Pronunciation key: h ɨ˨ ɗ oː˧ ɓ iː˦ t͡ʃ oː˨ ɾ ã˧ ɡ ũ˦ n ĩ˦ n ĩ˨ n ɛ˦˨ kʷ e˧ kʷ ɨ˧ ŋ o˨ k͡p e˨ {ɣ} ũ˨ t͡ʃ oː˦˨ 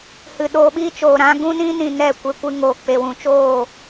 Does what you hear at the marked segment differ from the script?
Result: yes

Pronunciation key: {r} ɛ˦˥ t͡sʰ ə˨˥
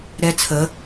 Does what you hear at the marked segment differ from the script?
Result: yes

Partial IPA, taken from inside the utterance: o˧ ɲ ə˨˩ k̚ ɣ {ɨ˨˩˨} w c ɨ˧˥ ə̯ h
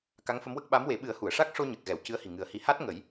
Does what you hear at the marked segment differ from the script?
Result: yes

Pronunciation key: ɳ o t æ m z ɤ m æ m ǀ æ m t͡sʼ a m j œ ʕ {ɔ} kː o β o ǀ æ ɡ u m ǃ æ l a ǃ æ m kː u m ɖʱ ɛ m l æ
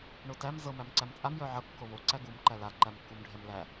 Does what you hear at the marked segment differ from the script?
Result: yes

